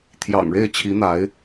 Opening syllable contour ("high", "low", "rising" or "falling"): low